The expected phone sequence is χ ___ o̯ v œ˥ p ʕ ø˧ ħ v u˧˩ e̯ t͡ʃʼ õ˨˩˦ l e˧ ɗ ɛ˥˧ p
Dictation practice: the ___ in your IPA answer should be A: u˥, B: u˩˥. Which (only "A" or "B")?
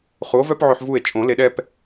B